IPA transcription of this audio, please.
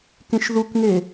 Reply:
k ẽ ʃ ð u k ŋ e

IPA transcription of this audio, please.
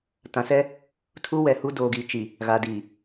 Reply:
t ã˨ s ɛ˦ | tʰ u˦ w ɛ˨ h u˦ d oː˨ ɡ iː˨ t͡ʃ i˨ | ɣ a˨ d iː˨

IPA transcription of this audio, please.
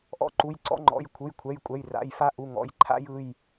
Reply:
ʔ ɔ̰˦ ǃ u˩˧˩ j ǀ ɔ̰˦ ŋ͡ǃ ɔ̰˩˧˩ j kʷʰ ɯ˩˧˩ j kʷʰ ɛ˩˧˩ j kʷʼ ɛ˩˧˩ j r a̰˩˧˩ j f a˦ ʔ u˩˧˩ ŋ ɔ̰˩˧˩ j ǃʰ a̰˦ j ɯ˩˧˩ j

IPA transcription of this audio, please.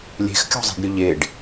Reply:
lʲ e̤ x kʲ ɔ̤ zˤ i̤ ɖ ɾʲ ɵ ʎ e ɖ

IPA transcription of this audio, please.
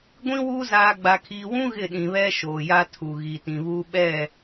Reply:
ɡʷ ĩ˦ w u˦ z aː˨ ɡ͡b a˨ kʰ iː˨ w ũ˦ ɣ ɪ˦˨ ɗ ĩ˨ β ɛ˦ ʃ oː˨ j a˦ tʰ u˨ ɣ iː˨ t ĩ˨ β uː˦ ɓ ɛ˦˨

